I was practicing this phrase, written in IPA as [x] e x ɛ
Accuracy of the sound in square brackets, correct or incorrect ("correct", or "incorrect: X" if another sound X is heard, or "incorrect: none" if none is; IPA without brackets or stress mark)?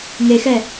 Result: incorrect: ŋ